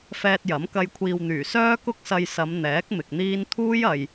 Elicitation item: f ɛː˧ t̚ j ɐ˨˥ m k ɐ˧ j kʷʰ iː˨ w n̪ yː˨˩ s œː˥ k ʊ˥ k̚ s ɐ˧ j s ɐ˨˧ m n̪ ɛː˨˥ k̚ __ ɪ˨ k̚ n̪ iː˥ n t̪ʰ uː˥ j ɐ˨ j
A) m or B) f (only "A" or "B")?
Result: A